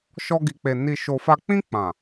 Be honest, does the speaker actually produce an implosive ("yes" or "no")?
no